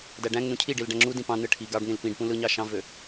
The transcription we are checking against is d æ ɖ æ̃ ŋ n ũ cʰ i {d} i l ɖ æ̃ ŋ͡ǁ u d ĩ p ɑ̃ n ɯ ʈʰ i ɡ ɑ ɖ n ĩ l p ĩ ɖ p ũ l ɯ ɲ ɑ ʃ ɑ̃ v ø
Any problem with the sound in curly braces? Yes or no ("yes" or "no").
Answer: yes